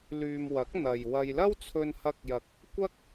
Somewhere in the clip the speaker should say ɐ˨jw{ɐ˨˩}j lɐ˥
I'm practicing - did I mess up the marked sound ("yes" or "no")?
yes